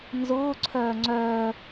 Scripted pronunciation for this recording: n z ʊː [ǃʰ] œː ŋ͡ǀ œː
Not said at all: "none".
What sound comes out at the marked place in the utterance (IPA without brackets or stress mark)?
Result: ǀʰ